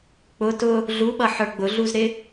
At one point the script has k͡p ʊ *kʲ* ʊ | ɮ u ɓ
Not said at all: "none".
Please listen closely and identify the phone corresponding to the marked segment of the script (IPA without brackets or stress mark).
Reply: t